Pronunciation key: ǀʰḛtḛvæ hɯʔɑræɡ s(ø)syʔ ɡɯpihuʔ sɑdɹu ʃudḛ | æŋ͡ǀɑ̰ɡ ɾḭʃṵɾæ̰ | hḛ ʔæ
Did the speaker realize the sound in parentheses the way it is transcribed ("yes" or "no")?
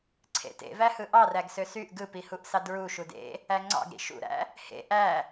yes